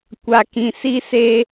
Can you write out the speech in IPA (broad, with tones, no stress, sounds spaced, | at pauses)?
kʷ a˨ k ĩ˨ s i˦ s eː˦